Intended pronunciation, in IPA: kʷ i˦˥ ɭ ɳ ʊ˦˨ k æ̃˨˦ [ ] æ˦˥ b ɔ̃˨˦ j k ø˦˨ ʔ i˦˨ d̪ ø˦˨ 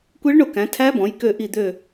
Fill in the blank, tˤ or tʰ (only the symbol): tʰ